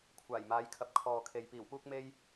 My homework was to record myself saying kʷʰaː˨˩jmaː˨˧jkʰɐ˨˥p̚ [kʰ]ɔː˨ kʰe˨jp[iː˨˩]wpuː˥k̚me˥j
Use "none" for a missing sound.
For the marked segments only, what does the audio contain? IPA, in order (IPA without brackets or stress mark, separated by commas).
kʰ, iː˨˩